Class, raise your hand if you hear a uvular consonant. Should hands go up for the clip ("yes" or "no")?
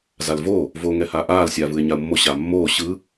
no